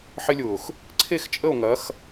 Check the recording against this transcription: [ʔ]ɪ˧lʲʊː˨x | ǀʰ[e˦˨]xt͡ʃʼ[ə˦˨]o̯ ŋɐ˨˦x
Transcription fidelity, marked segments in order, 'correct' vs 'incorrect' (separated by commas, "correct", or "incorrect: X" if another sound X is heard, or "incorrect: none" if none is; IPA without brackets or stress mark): incorrect: ħ, correct, correct